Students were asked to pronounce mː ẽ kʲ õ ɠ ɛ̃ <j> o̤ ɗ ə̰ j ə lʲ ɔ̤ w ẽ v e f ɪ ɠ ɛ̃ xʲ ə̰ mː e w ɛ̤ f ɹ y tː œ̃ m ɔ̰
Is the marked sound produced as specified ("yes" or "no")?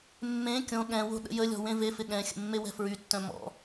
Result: no